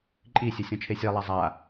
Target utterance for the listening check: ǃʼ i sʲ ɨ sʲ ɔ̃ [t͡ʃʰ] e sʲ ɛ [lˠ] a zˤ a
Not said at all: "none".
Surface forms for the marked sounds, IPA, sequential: t͡ʃʰ, lˠ

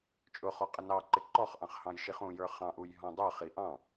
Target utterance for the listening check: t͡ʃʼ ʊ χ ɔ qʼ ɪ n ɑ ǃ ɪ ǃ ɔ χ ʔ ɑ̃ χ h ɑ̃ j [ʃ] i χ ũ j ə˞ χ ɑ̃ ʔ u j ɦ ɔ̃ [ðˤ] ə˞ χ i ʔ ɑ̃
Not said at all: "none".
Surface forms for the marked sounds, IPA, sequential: ʃ, dˤ

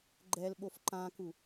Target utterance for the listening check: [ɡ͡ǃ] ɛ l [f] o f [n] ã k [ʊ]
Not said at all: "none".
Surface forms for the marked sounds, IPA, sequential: ɡ͡ǃ, ɓ, ǃ, u

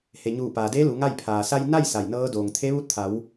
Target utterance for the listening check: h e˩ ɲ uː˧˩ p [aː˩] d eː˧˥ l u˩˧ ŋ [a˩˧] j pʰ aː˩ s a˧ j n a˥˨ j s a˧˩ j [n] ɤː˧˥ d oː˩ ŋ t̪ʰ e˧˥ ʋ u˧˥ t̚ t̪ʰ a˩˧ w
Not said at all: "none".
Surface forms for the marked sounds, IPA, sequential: aː˩, a˥˨, n

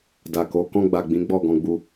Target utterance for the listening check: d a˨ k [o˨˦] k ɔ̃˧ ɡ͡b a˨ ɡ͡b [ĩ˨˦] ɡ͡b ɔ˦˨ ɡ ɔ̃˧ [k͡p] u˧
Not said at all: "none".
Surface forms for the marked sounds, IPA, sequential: o˨˦, ĩ˨˦, ɡ͡b

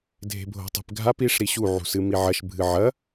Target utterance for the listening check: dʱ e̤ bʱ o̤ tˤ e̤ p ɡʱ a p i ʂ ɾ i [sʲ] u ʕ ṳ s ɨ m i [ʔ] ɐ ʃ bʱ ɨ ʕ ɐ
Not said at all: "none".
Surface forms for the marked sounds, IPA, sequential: ɕ, ʕ

